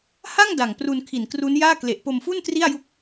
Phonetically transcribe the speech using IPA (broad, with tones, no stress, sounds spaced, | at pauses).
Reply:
h a˥˩ ŋ d a˨˩ ŋ p r u˧ n kʰ i˨˩ n k r u˦˥ n j aː˥˩ k l e˨˩ ʔ p o˧ m f u˥˩ n t r i˥˩ a̯ j u˦˥ k̚